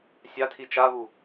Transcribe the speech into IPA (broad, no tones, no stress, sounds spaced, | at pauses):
sʲ a tʰ i t͡ʃ a β u